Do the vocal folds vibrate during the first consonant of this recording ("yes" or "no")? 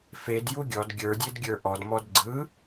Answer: no